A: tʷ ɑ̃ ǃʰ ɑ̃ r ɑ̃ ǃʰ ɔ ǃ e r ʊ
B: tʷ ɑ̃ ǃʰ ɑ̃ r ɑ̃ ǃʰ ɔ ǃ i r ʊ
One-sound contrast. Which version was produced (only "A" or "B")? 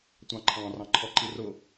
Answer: B